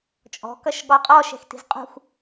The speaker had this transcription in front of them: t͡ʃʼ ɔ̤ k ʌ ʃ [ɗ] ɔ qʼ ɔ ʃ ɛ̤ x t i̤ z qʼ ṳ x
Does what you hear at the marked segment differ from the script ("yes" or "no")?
yes